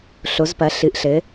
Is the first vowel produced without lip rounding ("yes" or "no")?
no